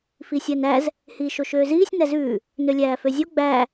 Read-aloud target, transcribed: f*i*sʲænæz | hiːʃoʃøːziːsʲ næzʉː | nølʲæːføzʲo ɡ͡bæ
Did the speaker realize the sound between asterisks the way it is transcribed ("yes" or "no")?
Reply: yes